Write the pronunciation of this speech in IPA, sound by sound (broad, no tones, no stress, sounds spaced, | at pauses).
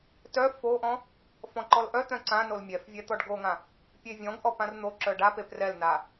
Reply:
t œ f o ʔ ɔ̃ | f ɔ̃ ǃ ɔ l ʔ œ t̪ œ̃ ǀ ã n o l mʲ ɛ f vʲ ɛ t̪ ɔ ɖ ɡ o ŋ ã | pʲ e vʲ ɔ̃ ɡ ʔ ɔ p ã r n̪ o ǁ œ ɖ a p e p r ɛ l n a